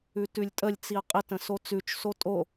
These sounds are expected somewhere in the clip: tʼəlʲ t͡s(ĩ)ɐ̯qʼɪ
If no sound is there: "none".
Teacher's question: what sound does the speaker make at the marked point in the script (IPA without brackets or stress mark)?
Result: i